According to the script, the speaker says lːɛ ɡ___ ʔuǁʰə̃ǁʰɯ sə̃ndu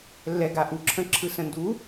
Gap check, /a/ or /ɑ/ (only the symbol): a